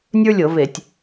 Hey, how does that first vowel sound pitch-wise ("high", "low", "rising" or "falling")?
high